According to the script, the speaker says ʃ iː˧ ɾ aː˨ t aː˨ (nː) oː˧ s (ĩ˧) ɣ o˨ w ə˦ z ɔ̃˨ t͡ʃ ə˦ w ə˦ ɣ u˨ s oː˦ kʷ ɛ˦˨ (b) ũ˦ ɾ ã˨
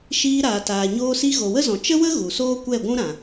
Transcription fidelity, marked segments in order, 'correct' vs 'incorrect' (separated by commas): incorrect, incorrect, incorrect